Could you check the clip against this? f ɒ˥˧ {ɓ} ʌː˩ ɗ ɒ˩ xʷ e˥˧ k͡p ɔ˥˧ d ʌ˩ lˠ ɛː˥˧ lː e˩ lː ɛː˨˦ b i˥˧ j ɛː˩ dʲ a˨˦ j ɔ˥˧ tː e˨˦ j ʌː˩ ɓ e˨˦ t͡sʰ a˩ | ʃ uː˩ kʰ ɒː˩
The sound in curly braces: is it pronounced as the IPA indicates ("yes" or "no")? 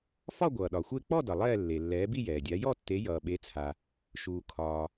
no